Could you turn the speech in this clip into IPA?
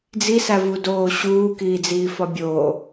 d͡z i s æ v u d oː ɕ uː k iː d͡z iː f ɒ bʲ oː

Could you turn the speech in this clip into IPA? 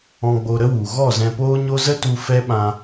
ɔ̃˧ ɡ͡b o˧ ɾ ə˦ w u˨ ɣ ɔ˦˨ z ɛ̃˧ p oː˦ ɲ o˦ z ə˦ t u˧ f ɛ˦ ɓ ã˧

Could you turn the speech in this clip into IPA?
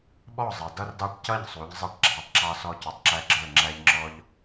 ɓ ɔ˥˩ zˤ ɛ˩ d ʌ˦ r d ɑ˦ ʈ c ʌ˥˩ ʎ sˤ u˩˧ ʎ zˤ ɛ˥˩ ʈ ɡ͡ǁ ɑ˩˧˩ tˤ ǁ ɑ˦ s ɔ˦ c u˩ tˤ ǁ æ˦ ɡ͡ǁ ə˞˥˩ ŋ͡ǁ æ˦ ʎ ŋ͡ǁ ɔ˦ ʎ

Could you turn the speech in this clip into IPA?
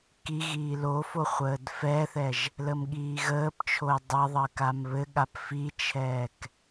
k i ɣ iː l o f o χʷ əː d f ɛ θ ɛ ʒ | l ə m ɠ iː ɣ əː p t͡ʃʰ o j dˤ ə ðˤ əː k a m β ɘ ɠ a p f i t͡ʃʰ ɛː k

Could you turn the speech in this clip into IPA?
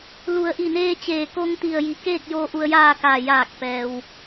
l u˩˧ ə̯ ʔ i˧˩ n eː˧ t͡ɕ eː˧˩ k o˧ ŋ t̪ i˧˩ ə̯ j i˩˧ k eː˥˨ k̚ j oː˧˥ ʔ u˧ ə̯ j aː˥˨ k aː˧˩ j aː˧˩ k̚ p ɛː˩ w

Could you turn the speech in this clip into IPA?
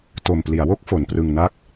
t o˨˩ m p l i˩˦ a̯ w o˥˩ k̚ f o˩˦ n p r ɯ˧ ŋ n a˥˩ k̚

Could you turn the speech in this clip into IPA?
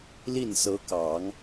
l i˥˩ n s ɤ˧˥ k ɑ˨˩˦ ŋ

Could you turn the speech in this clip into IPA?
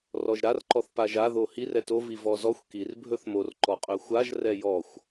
r ɔ ʒ ɾ a r ǃ ɔ θ p a ʒ a ð o h i r ɛ t o v i v ɔ z ɔ xʷ k i r bʱ ɵ θ m o r ǃ ɔ qʼ ɵ xʷ a ʒ r ɛ j ɔ xʷ

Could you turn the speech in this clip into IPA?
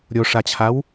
ɾʲ o ʂ a t͡ɕʰ a w

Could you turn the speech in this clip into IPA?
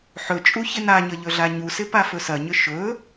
ħ ɵ t͡ʃʼ u ç ɪ n a ɲ ə ʎ ɵ ɮ a ɲ u s ɪ p a f ɵ s ɐ ɲ ʏ ʃ ɵ

